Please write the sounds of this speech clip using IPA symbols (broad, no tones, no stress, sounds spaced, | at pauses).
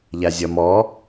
ʎ a zʲ ɐ m ɔ